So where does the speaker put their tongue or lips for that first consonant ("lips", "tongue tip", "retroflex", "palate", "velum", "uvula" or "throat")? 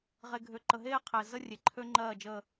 uvula